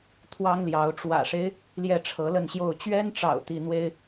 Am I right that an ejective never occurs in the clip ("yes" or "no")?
yes